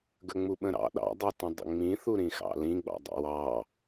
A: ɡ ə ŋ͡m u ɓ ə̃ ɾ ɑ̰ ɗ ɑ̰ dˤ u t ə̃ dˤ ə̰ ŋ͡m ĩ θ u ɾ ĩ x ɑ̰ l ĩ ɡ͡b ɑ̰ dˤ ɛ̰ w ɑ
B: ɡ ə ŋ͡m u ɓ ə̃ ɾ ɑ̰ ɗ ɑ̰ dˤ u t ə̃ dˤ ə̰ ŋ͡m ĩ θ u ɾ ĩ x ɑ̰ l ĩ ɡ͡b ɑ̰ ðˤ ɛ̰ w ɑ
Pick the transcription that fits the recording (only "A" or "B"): A